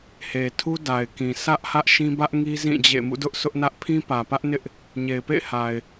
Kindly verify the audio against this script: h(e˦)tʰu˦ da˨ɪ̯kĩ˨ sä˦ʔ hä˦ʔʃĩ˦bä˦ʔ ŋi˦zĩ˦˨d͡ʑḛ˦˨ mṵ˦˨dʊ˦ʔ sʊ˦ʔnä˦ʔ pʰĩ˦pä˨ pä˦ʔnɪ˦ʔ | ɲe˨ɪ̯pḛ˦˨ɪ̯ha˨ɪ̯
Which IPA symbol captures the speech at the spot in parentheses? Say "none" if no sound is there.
e˨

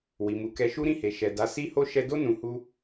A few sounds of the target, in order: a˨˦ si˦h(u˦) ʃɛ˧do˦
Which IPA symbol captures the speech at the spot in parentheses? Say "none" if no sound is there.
o˦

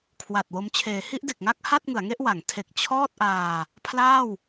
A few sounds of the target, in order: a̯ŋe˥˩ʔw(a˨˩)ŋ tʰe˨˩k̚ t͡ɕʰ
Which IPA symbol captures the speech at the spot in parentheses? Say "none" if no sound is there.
a˩˦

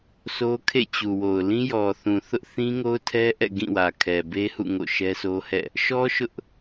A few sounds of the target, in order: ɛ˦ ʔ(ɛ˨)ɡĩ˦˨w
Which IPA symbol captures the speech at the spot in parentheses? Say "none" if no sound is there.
ɛ̰˦˨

